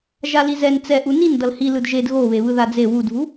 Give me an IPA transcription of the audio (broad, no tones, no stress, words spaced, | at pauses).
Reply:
ʒalizɛn t͡sɛʔu nin dʌlhi lɯdʒed ɣoβe βɯðad͡ze wudvu